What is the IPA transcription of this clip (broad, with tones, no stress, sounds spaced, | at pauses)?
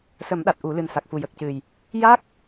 s ə˨˩˦ m ɗ a˨˩ t̚ ʔ u˨˩˦ l ɨ˨˩ n s a˨˩ k̚ f u˨˩ j ə˨˩ k̚ c ɨ˨˩ j | j a˦˥ k̚